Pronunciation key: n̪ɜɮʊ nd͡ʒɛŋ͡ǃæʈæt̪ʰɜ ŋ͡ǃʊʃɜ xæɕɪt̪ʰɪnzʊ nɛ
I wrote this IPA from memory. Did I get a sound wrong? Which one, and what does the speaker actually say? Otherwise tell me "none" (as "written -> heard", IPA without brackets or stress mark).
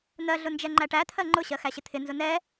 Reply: ʃ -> ɕ